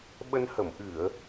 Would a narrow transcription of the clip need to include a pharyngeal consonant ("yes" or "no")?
no